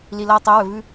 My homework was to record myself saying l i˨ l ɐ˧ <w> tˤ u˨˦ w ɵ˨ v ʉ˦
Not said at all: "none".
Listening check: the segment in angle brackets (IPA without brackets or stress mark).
w